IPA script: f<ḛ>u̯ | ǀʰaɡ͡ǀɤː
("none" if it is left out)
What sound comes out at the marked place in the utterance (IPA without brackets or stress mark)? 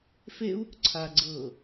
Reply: e